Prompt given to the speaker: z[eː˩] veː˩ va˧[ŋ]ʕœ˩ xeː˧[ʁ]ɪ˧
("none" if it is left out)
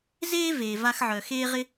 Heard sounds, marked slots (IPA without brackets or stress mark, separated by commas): eː˥, x, ʁ